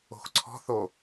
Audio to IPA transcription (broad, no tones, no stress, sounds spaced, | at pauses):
o̤ x ǀʰ ɔ̤ θ o